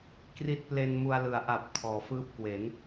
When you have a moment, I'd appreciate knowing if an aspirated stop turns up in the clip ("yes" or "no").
yes